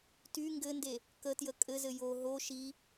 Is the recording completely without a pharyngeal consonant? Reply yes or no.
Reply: yes